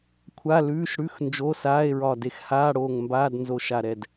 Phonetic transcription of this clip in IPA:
kʷʰ a˧˥˧ l ʉː˧˥˧ ʃ ɽ ʉ˧˥˧ x n d͡ʒ o˧˥˧ s aː˧˥˧ e̯ ɹ ɒ˧˩ d e˧˩ x h aː˧˥˧ ɽ oː˧˩ ŋ m b aː˧˥˧ d n z o˧˩ ʃ a˧˩ ɾ ɛ˧˩ d

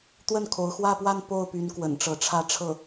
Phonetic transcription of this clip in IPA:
t̪ w ə˥˩ n kʰ o˧˥ ʊ̯ x w ä˥˧ p w a˥˧ n p o˥˩ ʊ̯ p y˧˥ n k w ə̰˨˩ n ʈ͡ʂ ɤ˧˥ ʈ͡ʂʰ ä˥˧ ʈ͡ʂʰ ɤ˥˩

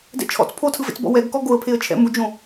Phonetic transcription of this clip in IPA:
d ɛ̰ t͡ʃʰ ɔ̰ t͡s pʰ o tʰ ɯ v ḛ t͡s b ɔ̰ w ɛ ɡ k ɔ ɡ o ə̯ pʰ e ə̯ t͡ʃʰ ɛ̰ m u d͡ʒ õ

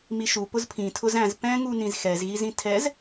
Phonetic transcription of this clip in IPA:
m i ʃ u p ʊ z pʰ ĩ tʰ ʊ z æ̃ z p ɛ̃ ŋ u n ĩ z x ɛ z ɣ i z ĩ tʰ ɛ z

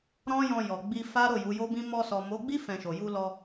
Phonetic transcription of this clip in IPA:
ɾ ɔ̃˦ j ɔ̃˧ j ɔ˨ ɡ͡b i˧ f a˦ ɾ o˦˨ j u˨˦ j o˦ b ĩ˦ m ɔ˧ s ɔ˨ m o˨˦ ɡ͡b i˦ f ɛ̃˧ ʃ o˨ j u˧ l ɔ˧

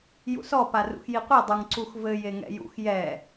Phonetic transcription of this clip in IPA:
j ṵ s ɔ p a r ṵ x j i qʷ i dˤ u ŋ ǀ u x v ɘ j e ŋ ɛ̰ j ṵ x j ɛ

